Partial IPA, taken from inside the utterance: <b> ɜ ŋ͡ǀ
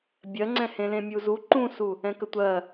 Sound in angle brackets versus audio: incorrect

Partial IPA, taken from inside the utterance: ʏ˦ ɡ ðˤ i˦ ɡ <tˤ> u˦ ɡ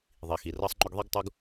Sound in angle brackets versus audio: correct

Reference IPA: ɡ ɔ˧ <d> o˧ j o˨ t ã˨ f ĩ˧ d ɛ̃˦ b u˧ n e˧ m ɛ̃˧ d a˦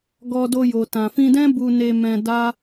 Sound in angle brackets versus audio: correct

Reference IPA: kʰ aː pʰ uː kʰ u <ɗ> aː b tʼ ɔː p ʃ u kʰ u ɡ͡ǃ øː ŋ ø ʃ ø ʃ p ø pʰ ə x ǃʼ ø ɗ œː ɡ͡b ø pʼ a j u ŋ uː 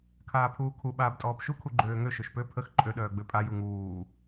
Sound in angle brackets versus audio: incorrect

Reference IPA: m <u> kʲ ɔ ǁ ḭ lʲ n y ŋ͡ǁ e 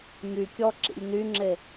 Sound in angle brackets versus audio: incorrect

